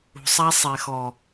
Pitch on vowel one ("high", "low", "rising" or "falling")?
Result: low